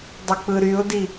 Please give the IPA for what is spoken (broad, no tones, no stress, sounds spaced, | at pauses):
dˤ i k͡p ɯ ɾ y ʊ̯ d i